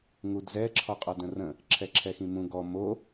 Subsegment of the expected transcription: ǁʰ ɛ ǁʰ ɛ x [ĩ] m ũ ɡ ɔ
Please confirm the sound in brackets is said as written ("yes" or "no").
yes